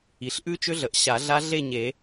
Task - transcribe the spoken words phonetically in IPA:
i˩ ɬ ʔ ʉ˦˥ t͡ʃ ʏ˦˥ ɮ ə˩ ʔ ɕ a˨˩˦ ɮ a˦˥ ɮ e˥˨ ɲ e˨˩˦

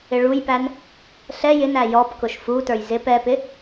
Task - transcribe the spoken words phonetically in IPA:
ɪ ɭ u j p æ n | ɬ ɛ j ɪ n æ j ɔ p k ʊ ʃ f u t ə˞ j z ɪ p ɛ p ɪ

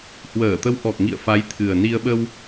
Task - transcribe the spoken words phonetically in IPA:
h w əː˧˩ t̪ ə˨˦ w ʔ ɔ˨˩ k̚ ŋ ḭ˧˨ ə̯ f a˨˦ j t̪ʰ ɨ˨˩ ə̯ n i˧ ə̯ ɓ ə˧ w

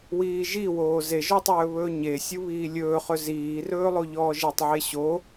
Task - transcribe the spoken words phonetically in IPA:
w iː ʒ i w oː z e ʒ ɔ tˤ ɵː β ɵː ɲ e sʲ u β iː lʲ ɵː χ ɵ z iː r ɵː lˠ o ʎ ɔː ʒ e tˤ ʕ e ɕ o

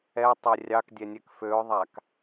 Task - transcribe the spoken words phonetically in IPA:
ɛ tˤ e rʲ ɑ k dʲ ɛ nʲ ɛ k f ø ʊ̯ ðˤ a k

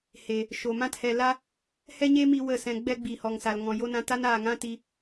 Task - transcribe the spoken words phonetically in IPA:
h e˨ | ʃ o˨ m ã˧ t h ɛ˨ l a˧ | h ɛ˦ ɲ e˦ m i˧ w ə˦˨ s ɛ̃˧ ɡ͡b ɛ˦ ɡ͡b i˨ h ɔ˨ ŋ s a˨ l ŋ ɔ̃˨ j o˧ n ã˧ t a˦ n aː˨ ŋ ã˦ t i˧

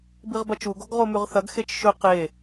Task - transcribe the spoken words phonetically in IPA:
b i ʁ b ɐ t͡ʃ u ɡ o ɡ ʁ o m ʉ ʁ θ ɐ ɡ x e t͡ʃ ʃ ɵ q e

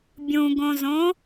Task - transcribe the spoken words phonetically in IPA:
bʲ ũ ɡ õ z õ

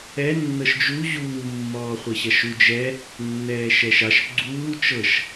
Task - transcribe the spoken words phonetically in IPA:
ɛ nː ɤ ʃ d͡ʒ u ʑ uː mː ɔː χʷ ɘ ɕ ɐ ʃ u d͡ʒ ɛ | nː ɛː ʃ ɛ ʃ ɑ ʃ ɡ͡ǀ uː t͡ʃ ɤ ʃ

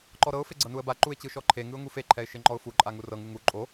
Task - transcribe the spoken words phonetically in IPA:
ǃ ɔ ɾ ɤ ʊ̯ f e ɡ͡ǀ ɤ n u ə̯ b a ǃ u ɪ̯ t͡ɕ ɯ ʃ ɔ ǃʰ e ŋ ɯ ʊ̯ ŋ u f e ǃʰ ɛ ɪ̯ ʃ e ŋ͡ǃ ɔ ʊ̯ f u ǃʼ a ŋ u r ɤ ŋ ɯ ŋ u ǃʼ o

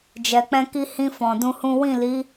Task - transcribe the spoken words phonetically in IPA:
d͡ʒ ɛ˨ k͡p ɛ̃˧ k i˦ h ĩ˧ f ɔ̃˨ d ũ˧ h ũ˦ w ĩ˦˨ l i˨˦

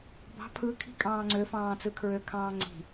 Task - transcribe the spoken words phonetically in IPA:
b ɑ̤ pʰ ɯ kʰ i̤ kʼ ɑ̃ː ŋ͡ǀ ø f ɑ̃ː t͡s ɯ kʰ ɹ ø kʰ ɑ̃ː ŋ͡ǀ i̤

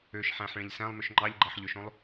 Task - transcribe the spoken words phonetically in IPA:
ø ʃ ħ æ̃ ħ ɭ ẽ ʎ s æ̃ lˠ m ø ʃ ŋ͡ǃ ɑ ʎ ɡ͡ǃ ɑ ħ ʎ ø ʃ õ lˠ

